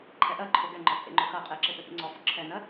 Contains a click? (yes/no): yes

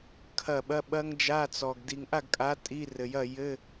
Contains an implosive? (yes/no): yes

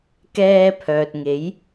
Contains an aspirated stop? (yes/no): yes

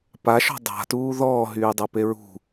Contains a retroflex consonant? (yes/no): no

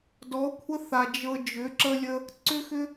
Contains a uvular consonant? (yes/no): no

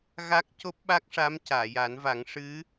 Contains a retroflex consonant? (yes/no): yes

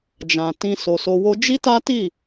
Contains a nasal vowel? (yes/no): yes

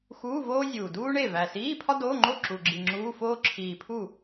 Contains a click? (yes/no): yes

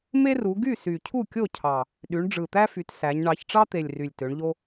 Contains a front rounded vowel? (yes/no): yes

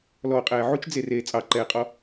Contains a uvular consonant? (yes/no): yes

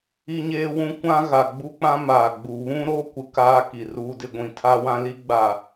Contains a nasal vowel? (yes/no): yes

